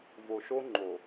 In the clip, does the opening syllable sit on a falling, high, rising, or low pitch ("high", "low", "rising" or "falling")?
low